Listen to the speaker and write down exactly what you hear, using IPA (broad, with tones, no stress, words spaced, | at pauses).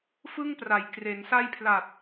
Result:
fɯ˥˩ŋpra˩˦j kre˩˦nsa˥˩j pʰla˨˩t̚